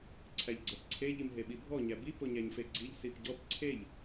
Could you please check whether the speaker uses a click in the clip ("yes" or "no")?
yes